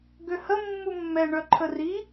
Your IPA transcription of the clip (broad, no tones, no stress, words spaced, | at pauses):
ɡøhə mːumːɛ ɳœǃʰəri